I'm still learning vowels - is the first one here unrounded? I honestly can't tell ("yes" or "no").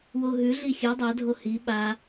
no